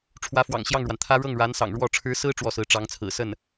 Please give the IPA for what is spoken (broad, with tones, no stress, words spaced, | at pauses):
ʈ͡ʂʰwä˧˥fwɑ̰˨˩ŋɕjɑ˥˩ŋɻwa˩n t̪ʰä˥ ɻɤ˥˩ŋɻa˧˥nsɑ̰˨˩ŋ ɻwɔ˥˩ ʈ͡ʂʰɻ̩˧˥sɹ̩˥ ʈ͡ʂwɔ˥˩sɹ̩˧˥ ʈ͡ʂɑ˧˥ŋt͡sʰɹ̩˨˩sə˥˩n